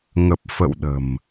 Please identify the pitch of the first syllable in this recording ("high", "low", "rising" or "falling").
low